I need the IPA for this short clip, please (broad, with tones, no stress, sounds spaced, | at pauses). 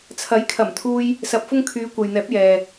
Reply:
t͡sʰ ɐ˨˥ j kʰ ɐ˨˩ m t̪ʰ uː˧ j | s ɐ˨ p̚ f ʊ˥ ŋ kʰ yː˨˧ kʷ ɐ˨ j n̪ ɛː˨˥ p̚ j ɛː˨